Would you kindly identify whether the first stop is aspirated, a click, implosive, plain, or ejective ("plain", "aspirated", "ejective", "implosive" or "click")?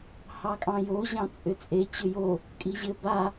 ejective